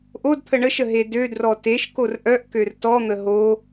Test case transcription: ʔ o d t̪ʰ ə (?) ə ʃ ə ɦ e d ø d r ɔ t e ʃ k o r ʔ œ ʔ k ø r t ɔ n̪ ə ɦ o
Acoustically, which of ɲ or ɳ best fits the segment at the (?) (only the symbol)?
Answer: ɳ